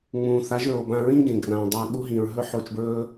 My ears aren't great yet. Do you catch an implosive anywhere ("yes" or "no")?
yes